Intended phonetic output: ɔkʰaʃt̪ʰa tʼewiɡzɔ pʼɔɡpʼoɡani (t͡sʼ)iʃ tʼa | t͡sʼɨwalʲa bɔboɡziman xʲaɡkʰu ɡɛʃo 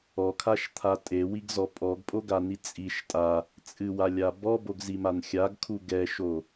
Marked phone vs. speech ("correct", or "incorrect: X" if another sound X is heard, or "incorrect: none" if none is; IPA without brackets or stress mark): correct